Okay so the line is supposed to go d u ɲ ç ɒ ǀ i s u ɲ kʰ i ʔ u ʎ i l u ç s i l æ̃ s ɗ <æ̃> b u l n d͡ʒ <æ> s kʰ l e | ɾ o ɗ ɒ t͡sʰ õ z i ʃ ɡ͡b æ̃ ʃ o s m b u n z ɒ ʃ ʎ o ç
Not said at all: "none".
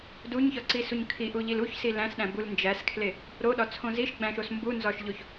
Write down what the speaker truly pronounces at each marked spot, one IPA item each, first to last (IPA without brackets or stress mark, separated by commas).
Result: æ̃, æ